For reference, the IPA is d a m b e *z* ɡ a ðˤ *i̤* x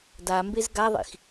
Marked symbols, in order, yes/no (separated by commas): yes, no